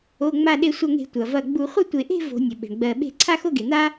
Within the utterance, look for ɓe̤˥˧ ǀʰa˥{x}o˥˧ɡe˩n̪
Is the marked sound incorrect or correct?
correct